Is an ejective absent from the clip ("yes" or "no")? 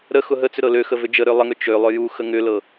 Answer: yes